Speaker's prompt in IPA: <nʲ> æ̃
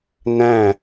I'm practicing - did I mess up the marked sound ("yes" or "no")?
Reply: yes